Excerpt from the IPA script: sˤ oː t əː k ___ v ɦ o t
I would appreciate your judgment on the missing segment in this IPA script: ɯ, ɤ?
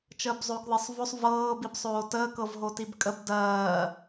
ɤ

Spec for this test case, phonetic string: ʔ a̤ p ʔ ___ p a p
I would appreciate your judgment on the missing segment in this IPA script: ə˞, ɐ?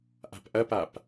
ɐ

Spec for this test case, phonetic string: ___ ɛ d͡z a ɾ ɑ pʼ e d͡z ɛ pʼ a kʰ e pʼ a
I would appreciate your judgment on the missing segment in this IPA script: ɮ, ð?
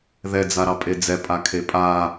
ð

